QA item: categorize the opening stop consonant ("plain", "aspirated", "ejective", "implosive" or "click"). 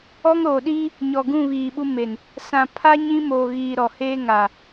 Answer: implosive